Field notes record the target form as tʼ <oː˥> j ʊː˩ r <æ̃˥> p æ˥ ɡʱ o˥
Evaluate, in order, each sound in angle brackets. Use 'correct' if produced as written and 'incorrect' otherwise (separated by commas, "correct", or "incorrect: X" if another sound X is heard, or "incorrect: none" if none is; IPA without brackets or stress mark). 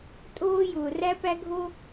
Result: correct, incorrect: æ˥